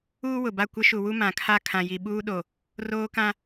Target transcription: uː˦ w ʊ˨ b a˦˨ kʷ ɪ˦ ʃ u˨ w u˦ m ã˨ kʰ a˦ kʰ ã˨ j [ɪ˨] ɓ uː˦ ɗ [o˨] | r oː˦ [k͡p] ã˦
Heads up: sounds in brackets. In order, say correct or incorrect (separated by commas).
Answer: incorrect, correct, incorrect